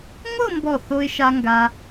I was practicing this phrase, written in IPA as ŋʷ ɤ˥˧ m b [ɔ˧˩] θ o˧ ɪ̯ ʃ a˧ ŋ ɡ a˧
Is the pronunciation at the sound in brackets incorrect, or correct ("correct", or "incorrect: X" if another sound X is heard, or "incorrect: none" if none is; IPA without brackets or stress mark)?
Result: correct